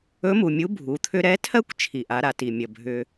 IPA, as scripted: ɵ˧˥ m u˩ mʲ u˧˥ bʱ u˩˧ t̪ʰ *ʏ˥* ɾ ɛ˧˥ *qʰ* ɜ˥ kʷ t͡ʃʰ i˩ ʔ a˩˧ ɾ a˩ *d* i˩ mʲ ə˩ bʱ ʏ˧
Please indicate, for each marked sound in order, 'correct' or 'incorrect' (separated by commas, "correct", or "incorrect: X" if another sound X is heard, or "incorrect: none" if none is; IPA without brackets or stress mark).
correct, incorrect: tʰ, incorrect: t